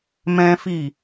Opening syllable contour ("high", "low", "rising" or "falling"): high